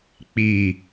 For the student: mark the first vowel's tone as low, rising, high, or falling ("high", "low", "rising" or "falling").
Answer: low